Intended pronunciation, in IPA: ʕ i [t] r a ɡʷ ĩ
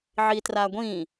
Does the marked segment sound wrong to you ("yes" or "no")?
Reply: no